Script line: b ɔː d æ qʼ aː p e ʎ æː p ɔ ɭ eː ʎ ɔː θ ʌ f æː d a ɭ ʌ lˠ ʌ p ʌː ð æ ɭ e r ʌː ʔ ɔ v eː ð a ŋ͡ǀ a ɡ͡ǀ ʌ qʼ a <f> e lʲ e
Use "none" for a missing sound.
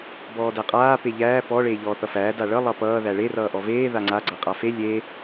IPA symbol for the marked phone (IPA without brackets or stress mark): f